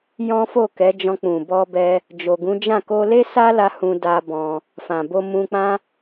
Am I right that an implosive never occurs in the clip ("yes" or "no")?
yes